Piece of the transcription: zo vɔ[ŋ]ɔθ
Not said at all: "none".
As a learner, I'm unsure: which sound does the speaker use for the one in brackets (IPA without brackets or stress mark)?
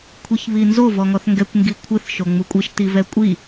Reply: ŋ